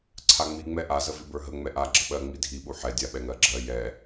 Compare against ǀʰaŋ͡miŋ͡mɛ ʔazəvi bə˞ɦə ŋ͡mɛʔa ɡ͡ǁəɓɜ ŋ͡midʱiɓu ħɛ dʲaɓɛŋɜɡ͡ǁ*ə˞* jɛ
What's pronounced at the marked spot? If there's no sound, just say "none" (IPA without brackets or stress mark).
ɜ